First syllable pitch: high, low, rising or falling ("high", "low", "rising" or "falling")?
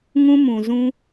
high